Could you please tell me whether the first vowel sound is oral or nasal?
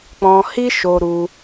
nasal